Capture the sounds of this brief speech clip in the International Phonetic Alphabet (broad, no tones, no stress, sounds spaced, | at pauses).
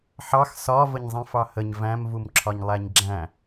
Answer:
ħ ɑ x s ɒ v ə ɲ zˤ ĩ f ɑ h ə ɲ v æ̃ m v u m ǁʰ ɒ ɲ lˠ æ ɲ ɡ͡ǁ æ̃